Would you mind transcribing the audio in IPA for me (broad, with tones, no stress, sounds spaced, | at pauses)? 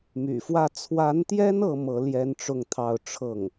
m y̰˨˩ f w ä˥˩ t͡sʰ w a˧˥ n t̪ j ɛ˥ n ɤ˥ m ɤ˧˥ l j ɛ˥ n ʈ͡ʂ ʊ˥˧ ŋ t̪ʰ ɑ˥˧ ʊ̯ ʈ͡ʂʰ ɤ˥˩ ŋ